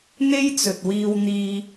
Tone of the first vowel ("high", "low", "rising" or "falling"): high